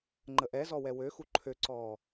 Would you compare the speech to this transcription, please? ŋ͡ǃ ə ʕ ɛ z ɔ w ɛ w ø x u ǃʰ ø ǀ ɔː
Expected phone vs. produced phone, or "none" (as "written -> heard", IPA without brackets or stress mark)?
ʕ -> ʔ